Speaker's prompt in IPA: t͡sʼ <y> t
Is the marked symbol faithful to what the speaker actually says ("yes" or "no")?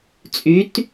yes